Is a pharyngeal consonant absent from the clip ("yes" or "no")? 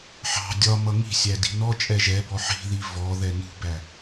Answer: no